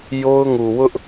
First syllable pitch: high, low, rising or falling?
high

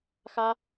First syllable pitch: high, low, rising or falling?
high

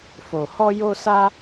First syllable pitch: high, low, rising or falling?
low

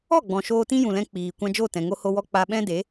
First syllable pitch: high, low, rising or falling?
falling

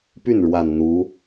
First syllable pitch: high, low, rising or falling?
falling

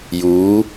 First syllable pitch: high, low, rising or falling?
rising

